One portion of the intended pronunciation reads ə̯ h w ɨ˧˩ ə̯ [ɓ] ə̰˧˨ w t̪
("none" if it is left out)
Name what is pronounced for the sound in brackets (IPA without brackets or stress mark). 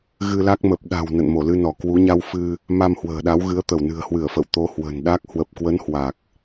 f